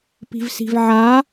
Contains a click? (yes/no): no